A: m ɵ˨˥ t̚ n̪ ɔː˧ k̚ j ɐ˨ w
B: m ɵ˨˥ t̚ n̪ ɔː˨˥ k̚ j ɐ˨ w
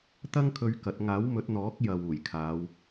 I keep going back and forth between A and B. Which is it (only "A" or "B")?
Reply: B